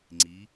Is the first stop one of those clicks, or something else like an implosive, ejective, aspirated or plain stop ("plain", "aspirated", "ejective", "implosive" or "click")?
click